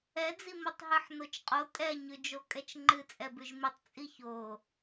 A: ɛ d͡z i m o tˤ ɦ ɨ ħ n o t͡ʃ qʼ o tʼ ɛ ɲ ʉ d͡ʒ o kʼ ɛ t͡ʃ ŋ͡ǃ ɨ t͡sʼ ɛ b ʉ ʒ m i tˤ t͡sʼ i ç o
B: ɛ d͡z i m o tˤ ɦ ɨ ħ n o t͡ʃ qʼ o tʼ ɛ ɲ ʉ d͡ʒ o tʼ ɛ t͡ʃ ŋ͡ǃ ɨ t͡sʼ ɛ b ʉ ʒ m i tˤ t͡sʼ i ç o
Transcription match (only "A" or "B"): A